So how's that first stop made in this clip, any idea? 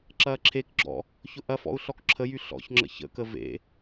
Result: click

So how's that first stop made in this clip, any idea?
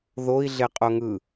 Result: ejective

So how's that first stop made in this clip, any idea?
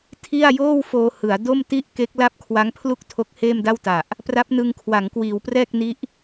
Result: aspirated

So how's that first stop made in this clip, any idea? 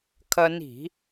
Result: aspirated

